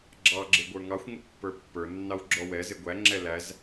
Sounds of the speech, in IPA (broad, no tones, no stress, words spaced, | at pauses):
ɡ͡ǁɑɡ͡ǁɪɡʷə˞ ŋɑxʷŋʊ pːə˞pːə˞ nːɑwɡ͡ǁɔwɛzɪ ɡʷæŋ͡ǁɛ læz